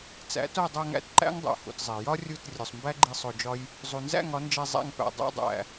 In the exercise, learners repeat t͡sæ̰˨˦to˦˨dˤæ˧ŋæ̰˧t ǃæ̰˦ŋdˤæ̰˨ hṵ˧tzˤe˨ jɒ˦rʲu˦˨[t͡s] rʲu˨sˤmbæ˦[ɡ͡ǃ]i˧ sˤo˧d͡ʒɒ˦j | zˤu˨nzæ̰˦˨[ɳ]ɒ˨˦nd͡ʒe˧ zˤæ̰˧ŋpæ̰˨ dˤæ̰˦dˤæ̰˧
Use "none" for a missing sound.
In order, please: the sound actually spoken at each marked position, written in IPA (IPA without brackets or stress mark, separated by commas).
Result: t, ɡ͡ǃ, ŋ